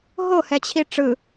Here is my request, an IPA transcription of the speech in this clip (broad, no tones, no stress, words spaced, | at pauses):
ɦo hɛt͡ɕʰiʈ͡ʂɯ